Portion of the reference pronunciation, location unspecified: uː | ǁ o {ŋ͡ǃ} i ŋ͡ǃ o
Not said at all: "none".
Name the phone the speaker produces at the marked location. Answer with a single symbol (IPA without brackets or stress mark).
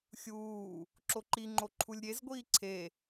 ǃ